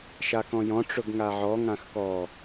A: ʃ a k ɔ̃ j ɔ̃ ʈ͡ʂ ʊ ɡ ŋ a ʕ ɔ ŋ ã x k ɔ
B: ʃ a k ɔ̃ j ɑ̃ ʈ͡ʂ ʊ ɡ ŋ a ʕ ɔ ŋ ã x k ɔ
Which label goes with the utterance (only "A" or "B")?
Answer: A